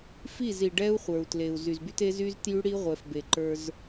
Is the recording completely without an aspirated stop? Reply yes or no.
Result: yes